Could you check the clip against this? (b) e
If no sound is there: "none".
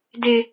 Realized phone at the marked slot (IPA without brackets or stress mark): d